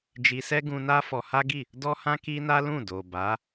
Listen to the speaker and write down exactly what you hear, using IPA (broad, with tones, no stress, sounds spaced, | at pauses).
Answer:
d͡ʒ i˧ s ɛ˦ ɡ ũ˧ n a˦ f ɔ˧ h a˦ ɡ i˦˨ | d ɔ˦ h ã˦ k i˦ n a˦ l ũ˦˨ d o˨ b a˨˦